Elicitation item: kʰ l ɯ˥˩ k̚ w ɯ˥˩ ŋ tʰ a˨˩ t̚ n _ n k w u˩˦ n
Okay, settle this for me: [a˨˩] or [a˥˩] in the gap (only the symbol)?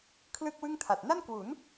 a˥˩